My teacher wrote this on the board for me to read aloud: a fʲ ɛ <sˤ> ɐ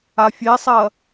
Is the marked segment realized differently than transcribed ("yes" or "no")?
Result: no